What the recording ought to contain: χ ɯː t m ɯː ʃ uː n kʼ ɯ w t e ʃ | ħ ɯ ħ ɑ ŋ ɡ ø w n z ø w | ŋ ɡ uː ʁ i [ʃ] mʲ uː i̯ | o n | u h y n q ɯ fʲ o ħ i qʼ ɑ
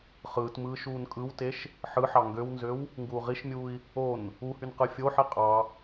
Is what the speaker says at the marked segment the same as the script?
yes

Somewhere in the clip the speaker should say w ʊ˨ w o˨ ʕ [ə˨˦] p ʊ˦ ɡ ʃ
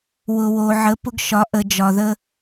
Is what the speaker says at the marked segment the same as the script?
yes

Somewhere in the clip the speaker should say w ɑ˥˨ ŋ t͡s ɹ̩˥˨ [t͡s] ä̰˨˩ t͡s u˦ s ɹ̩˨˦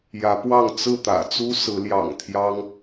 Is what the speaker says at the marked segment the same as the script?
no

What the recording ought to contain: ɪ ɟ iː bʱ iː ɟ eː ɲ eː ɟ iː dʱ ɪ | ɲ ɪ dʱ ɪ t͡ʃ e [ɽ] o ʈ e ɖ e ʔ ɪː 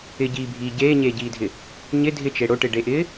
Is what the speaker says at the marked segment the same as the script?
yes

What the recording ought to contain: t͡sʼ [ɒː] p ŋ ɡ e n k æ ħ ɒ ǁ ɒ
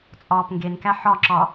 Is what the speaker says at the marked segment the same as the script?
yes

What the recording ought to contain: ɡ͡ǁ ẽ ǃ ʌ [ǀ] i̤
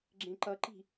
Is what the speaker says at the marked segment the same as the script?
no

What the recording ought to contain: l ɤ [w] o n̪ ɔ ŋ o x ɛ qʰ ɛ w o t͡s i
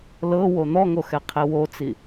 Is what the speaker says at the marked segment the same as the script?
yes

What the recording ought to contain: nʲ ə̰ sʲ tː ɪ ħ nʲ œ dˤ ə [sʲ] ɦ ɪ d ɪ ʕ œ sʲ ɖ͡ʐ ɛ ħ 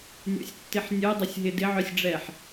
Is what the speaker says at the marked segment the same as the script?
yes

